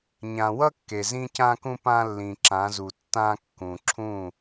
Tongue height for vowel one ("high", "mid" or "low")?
low